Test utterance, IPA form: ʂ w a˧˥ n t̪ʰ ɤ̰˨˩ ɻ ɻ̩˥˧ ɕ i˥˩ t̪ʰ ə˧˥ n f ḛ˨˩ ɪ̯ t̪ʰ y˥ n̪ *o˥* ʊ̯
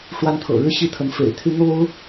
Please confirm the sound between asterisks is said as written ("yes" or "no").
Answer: yes